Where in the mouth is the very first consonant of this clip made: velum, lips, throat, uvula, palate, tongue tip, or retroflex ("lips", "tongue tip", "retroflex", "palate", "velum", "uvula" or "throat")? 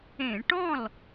retroflex